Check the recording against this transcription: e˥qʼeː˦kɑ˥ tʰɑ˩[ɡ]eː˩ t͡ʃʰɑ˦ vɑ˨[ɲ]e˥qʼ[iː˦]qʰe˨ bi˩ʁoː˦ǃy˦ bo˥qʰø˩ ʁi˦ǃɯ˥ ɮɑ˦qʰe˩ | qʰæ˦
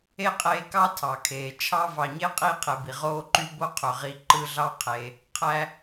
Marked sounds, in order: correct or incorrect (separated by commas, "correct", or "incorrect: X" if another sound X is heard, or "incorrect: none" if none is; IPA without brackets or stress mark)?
incorrect: kʰ, correct, correct